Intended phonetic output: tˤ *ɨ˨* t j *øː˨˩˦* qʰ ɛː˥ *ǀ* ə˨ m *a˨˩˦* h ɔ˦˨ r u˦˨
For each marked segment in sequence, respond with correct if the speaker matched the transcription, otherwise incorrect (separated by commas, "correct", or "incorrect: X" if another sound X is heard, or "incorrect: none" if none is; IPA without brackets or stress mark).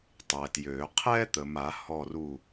incorrect: ɛ˨, correct, incorrect: t̪, correct